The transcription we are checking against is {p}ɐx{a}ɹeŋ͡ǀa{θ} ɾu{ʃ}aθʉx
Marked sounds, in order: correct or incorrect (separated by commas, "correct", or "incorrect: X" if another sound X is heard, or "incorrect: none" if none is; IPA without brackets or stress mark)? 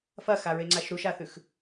incorrect: f, correct, incorrect: ʃ, correct